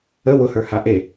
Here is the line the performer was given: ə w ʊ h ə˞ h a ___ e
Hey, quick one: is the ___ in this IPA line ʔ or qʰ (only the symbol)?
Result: ʔ